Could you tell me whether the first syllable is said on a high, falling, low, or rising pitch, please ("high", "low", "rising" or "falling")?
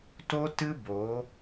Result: high